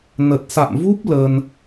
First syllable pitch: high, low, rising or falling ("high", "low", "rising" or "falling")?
low